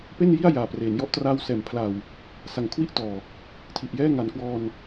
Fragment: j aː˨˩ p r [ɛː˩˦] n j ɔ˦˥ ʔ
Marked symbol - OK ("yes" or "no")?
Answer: no